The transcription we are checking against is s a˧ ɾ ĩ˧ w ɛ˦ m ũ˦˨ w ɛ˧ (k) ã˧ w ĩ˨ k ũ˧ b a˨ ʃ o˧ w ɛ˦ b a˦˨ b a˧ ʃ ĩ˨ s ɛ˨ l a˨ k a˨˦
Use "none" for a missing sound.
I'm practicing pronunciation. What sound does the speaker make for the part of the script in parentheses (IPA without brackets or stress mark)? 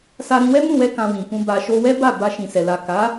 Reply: k